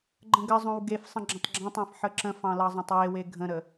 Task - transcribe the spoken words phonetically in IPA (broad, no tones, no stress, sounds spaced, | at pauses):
ɡ͡ǃ ə̃ ɡ ə zˤ õ w ɡ e f sˤ ə̃ ɡ͡ǁ ə̃ tˤ ɡ͡ǁ ɑ̃ tˤ ɑ̃ f ħ ə ǁ ə̃ f ɑ̃ l ɑ zˤ ɑ̃ tˤ w e w e ɡʱ ə̃ ɾ ə